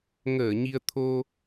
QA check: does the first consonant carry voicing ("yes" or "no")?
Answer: yes